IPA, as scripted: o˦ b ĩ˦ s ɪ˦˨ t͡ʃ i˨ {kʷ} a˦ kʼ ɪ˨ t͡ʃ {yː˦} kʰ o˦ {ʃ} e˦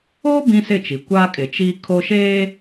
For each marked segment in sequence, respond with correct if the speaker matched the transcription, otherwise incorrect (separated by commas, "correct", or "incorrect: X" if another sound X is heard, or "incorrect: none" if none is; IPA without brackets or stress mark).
correct, incorrect: iː˦, correct